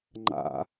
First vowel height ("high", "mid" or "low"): low